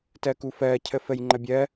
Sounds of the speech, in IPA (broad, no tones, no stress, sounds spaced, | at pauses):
t ɜ k u f ɜ cʰ ə f ə j ŋ͡ǃ ə bʲ ɜ